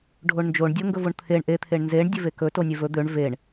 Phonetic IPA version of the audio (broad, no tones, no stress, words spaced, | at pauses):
ɖʱoɳnd͡ʒoɳ dʲoŋɡɵvoɳt̪ʰeɳ ʔe t̪ʰeɳnzeɳ dʲɵvekɵ tonʲevɵ d̪øɳ veɳ